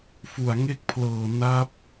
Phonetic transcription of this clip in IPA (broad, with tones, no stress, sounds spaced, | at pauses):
f u˨˩ a̯ ŋ e˥˩ k̚ pʰ l ɤː˨˩ n a˦˥ p̚